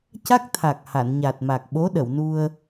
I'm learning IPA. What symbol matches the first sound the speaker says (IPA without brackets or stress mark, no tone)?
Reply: c